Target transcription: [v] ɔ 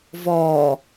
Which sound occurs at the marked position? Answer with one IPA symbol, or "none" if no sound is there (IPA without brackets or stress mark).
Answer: v